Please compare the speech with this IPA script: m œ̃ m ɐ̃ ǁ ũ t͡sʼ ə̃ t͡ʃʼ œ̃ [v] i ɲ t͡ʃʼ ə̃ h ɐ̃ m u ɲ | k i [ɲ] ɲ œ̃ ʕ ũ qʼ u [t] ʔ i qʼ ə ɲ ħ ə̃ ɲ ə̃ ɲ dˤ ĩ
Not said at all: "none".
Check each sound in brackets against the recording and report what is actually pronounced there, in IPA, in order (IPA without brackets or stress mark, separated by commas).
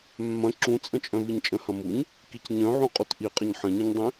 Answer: v, c, t